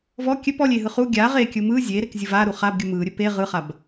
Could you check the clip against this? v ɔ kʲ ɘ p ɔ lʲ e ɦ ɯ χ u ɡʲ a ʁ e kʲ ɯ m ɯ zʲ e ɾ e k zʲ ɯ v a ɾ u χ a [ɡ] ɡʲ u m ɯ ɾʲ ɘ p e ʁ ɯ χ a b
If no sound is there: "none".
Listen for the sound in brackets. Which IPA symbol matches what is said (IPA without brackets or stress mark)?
b